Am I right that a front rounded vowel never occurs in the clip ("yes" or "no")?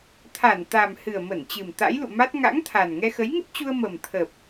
yes